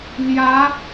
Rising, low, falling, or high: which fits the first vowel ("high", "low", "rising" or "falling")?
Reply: rising